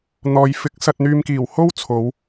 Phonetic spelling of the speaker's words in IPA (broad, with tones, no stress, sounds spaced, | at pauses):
n̪ ɔː˨˧ j f ɪ˨˥ k̚ s ɐ˨ t̚ n̪ yː˨ m k iː˨˩ w h o˥ w t͡sʰ o˨˧ w